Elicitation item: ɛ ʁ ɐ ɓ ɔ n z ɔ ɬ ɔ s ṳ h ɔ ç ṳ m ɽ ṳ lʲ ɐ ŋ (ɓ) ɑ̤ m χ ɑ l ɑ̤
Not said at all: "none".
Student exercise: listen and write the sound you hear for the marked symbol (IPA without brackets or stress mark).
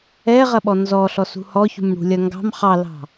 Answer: ɡ